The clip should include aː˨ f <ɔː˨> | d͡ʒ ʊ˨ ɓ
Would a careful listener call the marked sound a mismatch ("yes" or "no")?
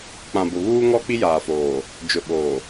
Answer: yes